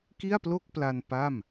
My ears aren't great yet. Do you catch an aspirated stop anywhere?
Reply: no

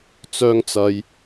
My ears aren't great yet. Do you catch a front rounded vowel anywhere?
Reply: yes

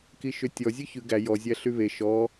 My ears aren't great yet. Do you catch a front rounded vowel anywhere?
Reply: yes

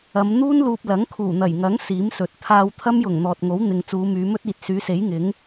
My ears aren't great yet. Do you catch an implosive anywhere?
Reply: no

